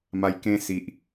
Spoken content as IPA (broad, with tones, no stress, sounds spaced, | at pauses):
m a˧ j k ẽ˧ s i˦ ʔ